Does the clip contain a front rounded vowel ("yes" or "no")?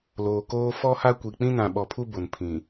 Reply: no